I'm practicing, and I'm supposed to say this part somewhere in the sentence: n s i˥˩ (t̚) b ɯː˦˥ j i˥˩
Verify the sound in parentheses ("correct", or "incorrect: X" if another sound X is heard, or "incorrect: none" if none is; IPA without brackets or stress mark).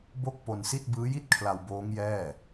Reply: correct